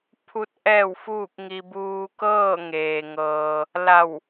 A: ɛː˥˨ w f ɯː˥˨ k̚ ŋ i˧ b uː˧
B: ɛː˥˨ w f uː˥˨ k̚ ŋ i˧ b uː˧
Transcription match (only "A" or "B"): B